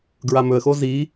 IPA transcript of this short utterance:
ɡɹamɵə̯xo zi

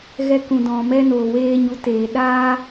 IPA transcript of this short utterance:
ɣɛ˧kũ˨dɔ̃˨ mɛ˧noː˨weː˧ɲu˨˦ teː˨ɗaː˦

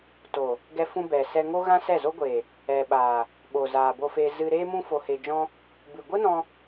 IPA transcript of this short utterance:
toː˨ | ɡɛ˧fũ˧ bɛ˨sɛ˧ ŋo˦ɣã˦sɛ˦˨zo˦ ɡʷeː˨ | ɛ˨ɓaː˨ | ɓo˨zaː˨ bo˧fe˧ zɨ˧ɾeː˦mũ˦ fo˧he˧d͡ʒɔ̃˦ | bɨ˨ɡʷɨ˦nɔ̃˧

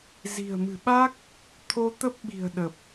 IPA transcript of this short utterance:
zi̤˨˩ə̯mɨ̤˨˩ɓa˦˥k̚ | t̪ʰo˧t̪ə˦˥p̚ɓi̤˨˩ə̯ ɗə˨˩p̚

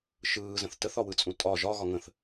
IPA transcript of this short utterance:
ʃɯːzə̃θ təθɒwɯt͡sʼũ tʼɒ ʒɒɣɒ ŋə̃θ

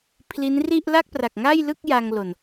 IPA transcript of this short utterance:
pʰli˦˥nri˥˩ʔ la˥˩k̚ pra˨˩k̚ŋa˥˩jlɯ˥˩k̚ ja˧ŋlo˨˩n

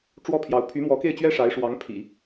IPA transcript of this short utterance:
ʈ͡ʂwɔ˥pʰjɑ˧˥ʊ̯ pʰy˧˥mwɔ˧˥ke˥˩ɪ̯ t͡ɕɥɛ˥ʂa˧˥ɪ̯ʂwɑ˧˥ŋpʰḭ˨˩˦

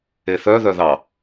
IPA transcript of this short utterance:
eθœðœ ðɑ

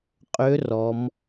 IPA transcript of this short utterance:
qʼø˧˥ rɔ˩˧m

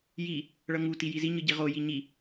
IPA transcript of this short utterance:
ji | ɭʌŋu tijizi ɲɯɟiʁo jiɲi

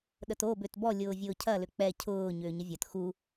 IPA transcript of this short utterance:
ɗəto bʏtbɔ lʲʊːvʲʊːcʰɐ lʏk͡pɛ cʰʊː ɲʏːɲəvʲɐt xu

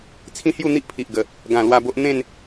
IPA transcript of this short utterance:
t͡sʰĩ˦hju˥˧n̪i˦ʔ pʰi˨ʔɡə˨˩ | ɡã˨˩ lwa˥˧bo˦ʔ n̪ẽ˥˧n

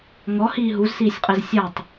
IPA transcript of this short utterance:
ŋɔhiː ɦuzsiːsʲqʼez sʲatˤ

